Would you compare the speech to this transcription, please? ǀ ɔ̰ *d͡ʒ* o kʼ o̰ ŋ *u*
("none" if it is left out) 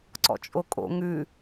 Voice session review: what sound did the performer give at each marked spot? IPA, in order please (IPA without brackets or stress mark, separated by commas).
t͡ʃʼ, ʉ